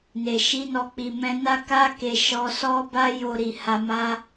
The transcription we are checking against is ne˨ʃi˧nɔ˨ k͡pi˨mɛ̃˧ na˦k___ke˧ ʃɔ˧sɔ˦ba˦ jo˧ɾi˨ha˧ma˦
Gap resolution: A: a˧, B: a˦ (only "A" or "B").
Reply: B